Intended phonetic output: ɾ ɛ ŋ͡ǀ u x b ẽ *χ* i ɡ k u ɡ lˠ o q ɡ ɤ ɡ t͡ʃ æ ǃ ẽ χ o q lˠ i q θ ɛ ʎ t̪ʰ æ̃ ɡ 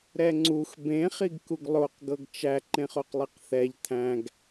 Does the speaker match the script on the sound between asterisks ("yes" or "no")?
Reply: yes